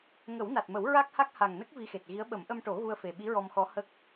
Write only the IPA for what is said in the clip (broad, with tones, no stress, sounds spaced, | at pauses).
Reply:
ŋ ə˨˩˦ w n a˨˩ t̚ m ə˨˩˦ w ɹ a˦˥ k̚ h a˦˥ k̚ h a˨˩ ŋ n ə˦˥ k̚ v i˧ x e˨˩ t̚ ɣ i˧˥ ə̯ ɓ ə˨˩˦ m ʔ ə˧ m ʈ o˨˩˦ ɣ u˧ ə̯ f e˨˩ ɓ i˧˥ ɹ ɔ˧ m x ɔ˧˥ h ə˦˥ k̚